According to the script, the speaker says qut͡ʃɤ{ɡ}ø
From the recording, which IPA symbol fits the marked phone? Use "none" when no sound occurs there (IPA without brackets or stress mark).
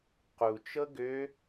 ɡ